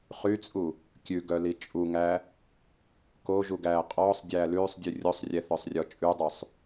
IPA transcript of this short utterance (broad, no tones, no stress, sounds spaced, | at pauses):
χ y t͡sʼ u | kʲ ʉ ɡ œ l i t͡ʃʼ u ŋ æ | k o ʒ u ɡ æː qʼ ɔː sˤ dʲ æː l ʉː sˤ dʲ ʉ rʲ o sˤ rʲ ɛ θ œ sˤ rʲ ɔ t͡ʃʼ ʉ dˤ ʉ sˤ